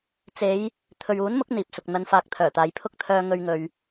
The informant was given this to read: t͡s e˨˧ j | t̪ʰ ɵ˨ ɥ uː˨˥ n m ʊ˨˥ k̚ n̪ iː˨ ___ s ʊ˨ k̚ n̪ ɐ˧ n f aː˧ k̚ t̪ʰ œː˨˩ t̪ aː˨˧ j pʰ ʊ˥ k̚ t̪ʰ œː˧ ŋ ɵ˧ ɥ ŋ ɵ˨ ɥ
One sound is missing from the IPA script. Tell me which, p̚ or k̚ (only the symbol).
p̚